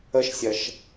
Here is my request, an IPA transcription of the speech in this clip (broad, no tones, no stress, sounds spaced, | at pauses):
ə ʃ sʲ ɐ ʃ